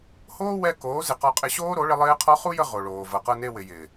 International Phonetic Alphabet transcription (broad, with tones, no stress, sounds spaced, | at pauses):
h oː˦ w ɛ˧ k oː˨˦ z ɪ˨ q ɔ˧ qʼ ɪ˧ ɕ oː˦ ɾ o˨˦ ɭ ɪ˧ lˠ ɪː˦ qʰ ɔ˦ χ u˦ j ə˧ ʁ o˨ ɭ oː˨ v ɤ˨ q ɤ˧ n e˧ w ɪ˨ j ɪː˨